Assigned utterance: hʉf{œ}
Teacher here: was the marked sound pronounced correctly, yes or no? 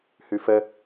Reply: no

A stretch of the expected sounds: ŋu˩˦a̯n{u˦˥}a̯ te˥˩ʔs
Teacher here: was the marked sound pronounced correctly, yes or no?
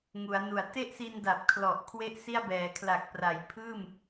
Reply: no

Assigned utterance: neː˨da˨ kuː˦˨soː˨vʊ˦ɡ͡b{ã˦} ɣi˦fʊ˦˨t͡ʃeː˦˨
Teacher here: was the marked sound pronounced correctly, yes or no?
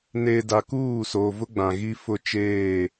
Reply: no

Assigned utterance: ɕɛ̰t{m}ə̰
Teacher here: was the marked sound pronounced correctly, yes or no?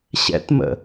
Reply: yes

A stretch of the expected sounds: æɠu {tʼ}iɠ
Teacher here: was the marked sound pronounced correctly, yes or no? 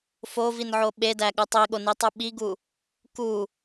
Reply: no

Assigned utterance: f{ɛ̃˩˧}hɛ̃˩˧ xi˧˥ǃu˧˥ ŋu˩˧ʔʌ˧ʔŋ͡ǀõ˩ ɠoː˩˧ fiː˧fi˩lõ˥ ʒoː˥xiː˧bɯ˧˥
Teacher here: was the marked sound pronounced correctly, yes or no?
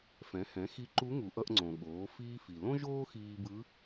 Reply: yes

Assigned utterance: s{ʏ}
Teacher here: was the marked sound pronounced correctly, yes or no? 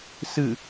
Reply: no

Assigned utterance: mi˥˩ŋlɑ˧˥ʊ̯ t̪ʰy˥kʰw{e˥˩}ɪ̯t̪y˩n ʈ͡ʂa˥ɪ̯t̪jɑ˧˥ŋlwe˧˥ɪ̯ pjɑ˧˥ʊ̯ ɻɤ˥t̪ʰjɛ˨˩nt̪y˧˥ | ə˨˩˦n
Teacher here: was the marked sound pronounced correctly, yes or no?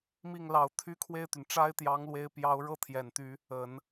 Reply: yes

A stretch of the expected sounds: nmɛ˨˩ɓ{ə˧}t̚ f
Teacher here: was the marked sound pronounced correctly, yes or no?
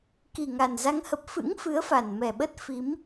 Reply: no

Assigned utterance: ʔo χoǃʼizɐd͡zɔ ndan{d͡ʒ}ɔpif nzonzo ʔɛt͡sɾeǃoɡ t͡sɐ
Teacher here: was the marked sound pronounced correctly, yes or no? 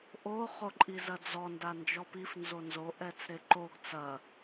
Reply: yes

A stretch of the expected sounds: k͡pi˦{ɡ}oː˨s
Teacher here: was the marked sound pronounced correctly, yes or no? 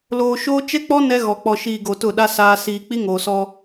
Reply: no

